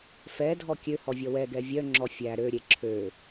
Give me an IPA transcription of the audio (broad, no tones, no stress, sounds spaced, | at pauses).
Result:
f ɛ dʱ ɔ kʲ ø h ɔ vʲ ɔ w ɛ ɡ ɛ vʲ œ ŋ͡ǁ ɔ fʲ æ ɾ ø ɾʲ e ǁʰ ø